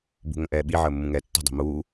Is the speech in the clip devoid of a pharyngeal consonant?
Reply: no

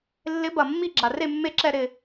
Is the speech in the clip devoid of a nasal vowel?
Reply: yes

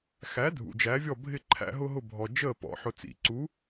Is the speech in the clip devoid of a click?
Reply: no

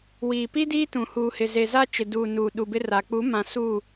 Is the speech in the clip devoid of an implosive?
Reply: no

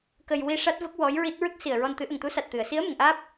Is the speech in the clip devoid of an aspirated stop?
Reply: yes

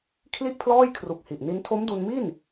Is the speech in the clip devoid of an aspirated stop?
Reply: no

